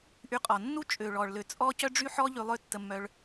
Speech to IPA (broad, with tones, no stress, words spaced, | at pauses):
ʔy˧qʼɔ˨ nːu˦t͡ʃʼø˨ɭɔ˨ɭ lø˨ t͡sʼɔ˦ cœ˦ɖ͡ʐy˦ħɔ˦ ʎy˧lˠø˦˨ tːə˧mːœ˧ɭ